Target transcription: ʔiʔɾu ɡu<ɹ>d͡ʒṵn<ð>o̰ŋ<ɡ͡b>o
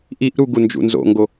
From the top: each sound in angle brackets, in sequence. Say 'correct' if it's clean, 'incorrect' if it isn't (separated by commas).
incorrect, incorrect, incorrect